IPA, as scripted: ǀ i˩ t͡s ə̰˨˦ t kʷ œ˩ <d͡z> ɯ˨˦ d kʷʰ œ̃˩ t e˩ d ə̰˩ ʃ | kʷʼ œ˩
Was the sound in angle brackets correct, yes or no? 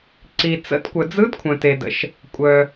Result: yes